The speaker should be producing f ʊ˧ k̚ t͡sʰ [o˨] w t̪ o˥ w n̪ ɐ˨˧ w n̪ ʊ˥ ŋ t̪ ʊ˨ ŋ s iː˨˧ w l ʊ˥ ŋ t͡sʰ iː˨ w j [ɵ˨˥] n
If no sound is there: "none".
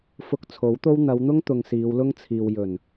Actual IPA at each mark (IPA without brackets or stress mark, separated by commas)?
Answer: o˨˥, ɵ˨˩